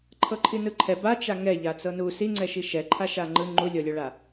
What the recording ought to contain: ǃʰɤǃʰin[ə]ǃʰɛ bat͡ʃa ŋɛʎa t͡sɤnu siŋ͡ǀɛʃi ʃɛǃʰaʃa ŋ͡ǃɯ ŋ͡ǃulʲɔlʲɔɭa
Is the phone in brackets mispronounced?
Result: yes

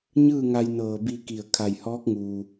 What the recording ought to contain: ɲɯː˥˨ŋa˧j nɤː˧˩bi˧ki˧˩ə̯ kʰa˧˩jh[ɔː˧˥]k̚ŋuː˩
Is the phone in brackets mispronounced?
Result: no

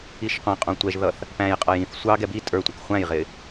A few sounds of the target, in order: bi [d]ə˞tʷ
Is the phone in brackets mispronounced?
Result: yes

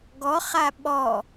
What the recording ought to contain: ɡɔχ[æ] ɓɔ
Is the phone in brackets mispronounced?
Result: yes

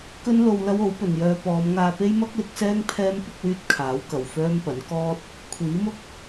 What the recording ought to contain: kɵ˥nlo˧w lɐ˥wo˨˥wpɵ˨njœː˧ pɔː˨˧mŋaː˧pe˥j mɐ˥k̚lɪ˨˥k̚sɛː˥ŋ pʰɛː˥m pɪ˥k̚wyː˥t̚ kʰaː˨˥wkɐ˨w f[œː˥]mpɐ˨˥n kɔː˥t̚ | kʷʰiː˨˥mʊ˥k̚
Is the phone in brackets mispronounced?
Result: no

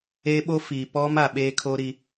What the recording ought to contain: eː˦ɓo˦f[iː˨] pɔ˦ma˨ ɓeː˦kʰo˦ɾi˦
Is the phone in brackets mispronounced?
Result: no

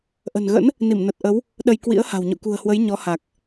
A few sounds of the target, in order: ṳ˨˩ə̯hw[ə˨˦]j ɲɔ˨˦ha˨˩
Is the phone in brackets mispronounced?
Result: no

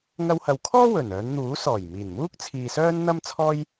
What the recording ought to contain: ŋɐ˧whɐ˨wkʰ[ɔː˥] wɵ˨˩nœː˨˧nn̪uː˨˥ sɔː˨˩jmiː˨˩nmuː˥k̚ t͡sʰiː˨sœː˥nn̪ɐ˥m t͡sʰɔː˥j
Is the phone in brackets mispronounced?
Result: no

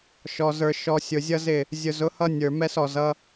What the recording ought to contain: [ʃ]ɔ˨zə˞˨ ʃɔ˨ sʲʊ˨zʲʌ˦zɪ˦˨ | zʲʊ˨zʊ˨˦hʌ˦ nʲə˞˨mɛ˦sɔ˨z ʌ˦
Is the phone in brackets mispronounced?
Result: no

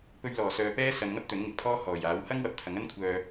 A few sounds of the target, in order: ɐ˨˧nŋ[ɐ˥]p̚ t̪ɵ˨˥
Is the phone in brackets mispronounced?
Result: no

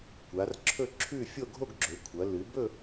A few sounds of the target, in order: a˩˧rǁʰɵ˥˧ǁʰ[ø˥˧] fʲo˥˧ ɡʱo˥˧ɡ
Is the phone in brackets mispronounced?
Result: yes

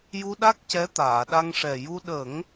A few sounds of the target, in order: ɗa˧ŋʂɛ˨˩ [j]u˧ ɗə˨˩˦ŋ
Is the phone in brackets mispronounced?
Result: no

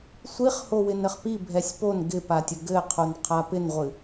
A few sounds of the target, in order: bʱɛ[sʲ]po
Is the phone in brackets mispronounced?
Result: no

